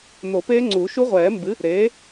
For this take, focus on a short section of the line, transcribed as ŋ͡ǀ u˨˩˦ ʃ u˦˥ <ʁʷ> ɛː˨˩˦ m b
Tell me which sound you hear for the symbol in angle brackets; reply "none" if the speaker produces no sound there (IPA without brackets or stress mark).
ʁʷ